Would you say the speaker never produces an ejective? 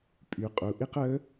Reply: no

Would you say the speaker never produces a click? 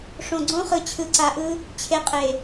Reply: no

